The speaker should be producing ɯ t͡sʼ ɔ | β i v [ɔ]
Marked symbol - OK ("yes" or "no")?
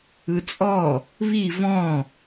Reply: no